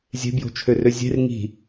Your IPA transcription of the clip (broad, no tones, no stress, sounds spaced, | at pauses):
zʲ e̤ b j o̤ t͡ʃʰ ø r ø zʲ e̤ r ŋ i̤